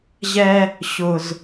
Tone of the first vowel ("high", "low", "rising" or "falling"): high